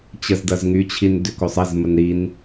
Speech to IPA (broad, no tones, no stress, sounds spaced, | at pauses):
t͡ɕ ə z d ɐ z ŋ y t͡ɕʰ i n d ʏ k o sˤ ɐ z m ə n ɾ i n